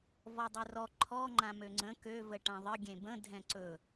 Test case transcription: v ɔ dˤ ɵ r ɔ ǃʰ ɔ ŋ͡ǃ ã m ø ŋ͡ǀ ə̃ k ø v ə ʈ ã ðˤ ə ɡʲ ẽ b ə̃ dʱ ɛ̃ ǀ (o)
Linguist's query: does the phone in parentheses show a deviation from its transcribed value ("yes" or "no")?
yes